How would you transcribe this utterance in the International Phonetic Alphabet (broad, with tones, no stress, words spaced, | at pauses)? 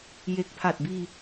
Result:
je˨˩k̚pʰa˨˩t̚biː˧